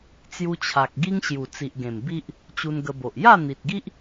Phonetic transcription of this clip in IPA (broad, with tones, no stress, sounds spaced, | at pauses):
t͡s j u˧ t͡ɕʰ a˨ k̚ ɡ i˦ ŋ ɕ j u˨˩ t͡s i˨ ʔ ɡ ẽ˨˩ m b i˦ ʔ | t͡ɕ u˧ n ɡ ə˧ b o˨ ʔ j a˥˧ n̪ i˨ t̚ ɡ i˦ ʔ